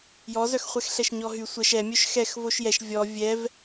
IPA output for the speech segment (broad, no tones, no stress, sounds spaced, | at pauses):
j ɔ z œ x χʷ ɛ x ɬ ɛ ʃ ɲ ɔ ɦ y sʷ ə ʃ ɛ mʲ œ ʃ x ɛ x v o ʃ j ɛ ʃ vʲ ɔ vʲ ɛ v